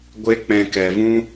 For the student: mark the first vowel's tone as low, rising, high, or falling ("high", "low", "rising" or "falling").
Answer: high